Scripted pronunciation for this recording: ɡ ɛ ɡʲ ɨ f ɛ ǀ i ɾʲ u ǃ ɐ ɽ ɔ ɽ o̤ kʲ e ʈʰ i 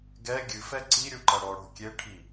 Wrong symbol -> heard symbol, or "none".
none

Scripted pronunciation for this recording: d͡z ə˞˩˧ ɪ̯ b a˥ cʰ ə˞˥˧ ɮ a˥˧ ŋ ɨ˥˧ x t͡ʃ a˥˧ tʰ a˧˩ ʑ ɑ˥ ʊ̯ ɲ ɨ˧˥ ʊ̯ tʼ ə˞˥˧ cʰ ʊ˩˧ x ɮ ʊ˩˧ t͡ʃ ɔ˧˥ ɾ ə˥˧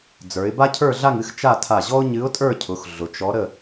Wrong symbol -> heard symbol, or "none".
ɑ˥ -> ɔ˥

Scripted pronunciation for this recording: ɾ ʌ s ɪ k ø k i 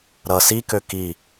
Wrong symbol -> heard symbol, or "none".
ɪ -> i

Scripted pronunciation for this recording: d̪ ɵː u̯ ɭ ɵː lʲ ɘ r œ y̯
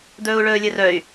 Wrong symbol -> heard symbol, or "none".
none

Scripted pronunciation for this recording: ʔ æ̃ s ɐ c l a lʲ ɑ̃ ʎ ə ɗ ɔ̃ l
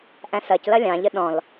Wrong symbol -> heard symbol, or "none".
a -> ɐ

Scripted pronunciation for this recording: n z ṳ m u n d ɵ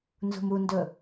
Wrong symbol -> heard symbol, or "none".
none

